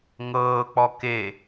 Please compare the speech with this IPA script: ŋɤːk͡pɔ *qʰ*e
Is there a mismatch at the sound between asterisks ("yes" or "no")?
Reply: yes